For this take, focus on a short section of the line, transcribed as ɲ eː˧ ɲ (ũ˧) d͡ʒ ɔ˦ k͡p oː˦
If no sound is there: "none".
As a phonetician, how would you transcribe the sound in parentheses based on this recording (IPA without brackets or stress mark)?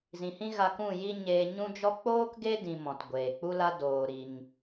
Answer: ũ˦